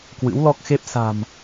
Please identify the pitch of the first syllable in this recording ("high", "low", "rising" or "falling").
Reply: rising